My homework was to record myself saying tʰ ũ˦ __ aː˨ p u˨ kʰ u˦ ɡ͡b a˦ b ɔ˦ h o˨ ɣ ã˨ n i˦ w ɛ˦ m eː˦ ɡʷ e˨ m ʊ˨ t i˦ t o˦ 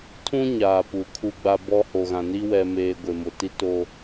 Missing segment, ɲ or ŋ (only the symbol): ɲ